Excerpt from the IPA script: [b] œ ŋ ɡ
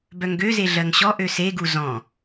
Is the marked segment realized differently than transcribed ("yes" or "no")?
no